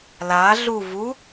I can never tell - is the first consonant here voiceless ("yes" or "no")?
no